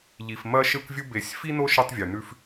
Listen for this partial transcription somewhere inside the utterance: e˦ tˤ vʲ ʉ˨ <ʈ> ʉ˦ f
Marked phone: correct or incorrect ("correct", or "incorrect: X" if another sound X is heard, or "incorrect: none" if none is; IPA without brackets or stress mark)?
incorrect: n